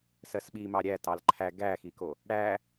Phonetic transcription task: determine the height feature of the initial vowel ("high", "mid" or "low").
mid